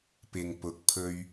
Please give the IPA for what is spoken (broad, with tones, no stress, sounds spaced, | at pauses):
p ɪ˨ ŋ p ʊ˨ k̚ pʰ ɵ˧ ɥ